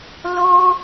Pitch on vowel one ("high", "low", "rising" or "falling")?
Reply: high